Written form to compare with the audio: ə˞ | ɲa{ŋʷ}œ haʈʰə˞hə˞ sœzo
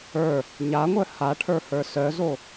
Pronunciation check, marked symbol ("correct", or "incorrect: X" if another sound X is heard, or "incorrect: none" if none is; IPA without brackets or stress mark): correct